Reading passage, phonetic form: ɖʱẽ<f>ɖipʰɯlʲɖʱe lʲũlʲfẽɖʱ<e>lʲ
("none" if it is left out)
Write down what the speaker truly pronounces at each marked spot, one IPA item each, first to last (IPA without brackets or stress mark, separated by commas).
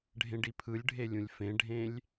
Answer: none, ẽ